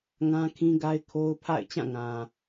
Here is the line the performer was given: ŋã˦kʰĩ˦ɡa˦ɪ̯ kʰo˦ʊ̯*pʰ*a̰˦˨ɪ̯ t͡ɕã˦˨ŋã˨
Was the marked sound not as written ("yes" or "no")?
no